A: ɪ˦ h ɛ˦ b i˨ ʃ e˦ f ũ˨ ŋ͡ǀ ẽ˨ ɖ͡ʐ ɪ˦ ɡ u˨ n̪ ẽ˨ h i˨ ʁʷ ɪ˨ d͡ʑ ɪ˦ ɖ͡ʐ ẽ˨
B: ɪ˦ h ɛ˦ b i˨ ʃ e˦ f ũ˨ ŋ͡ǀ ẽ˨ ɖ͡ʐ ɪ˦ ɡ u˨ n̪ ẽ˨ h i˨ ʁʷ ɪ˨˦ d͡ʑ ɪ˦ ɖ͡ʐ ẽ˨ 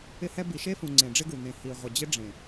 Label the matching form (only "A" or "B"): A